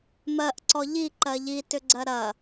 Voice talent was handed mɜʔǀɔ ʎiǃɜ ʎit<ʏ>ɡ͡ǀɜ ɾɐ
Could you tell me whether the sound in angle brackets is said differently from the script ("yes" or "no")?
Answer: no